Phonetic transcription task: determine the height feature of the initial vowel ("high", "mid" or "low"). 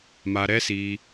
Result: low